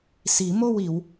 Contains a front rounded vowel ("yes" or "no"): no